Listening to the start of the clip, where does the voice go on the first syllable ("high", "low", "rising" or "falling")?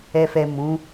low